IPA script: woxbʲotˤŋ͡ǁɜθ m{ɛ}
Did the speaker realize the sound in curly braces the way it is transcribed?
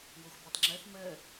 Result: no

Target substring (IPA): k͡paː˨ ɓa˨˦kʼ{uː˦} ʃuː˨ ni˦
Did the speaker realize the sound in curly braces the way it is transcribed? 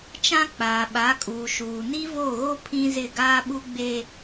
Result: no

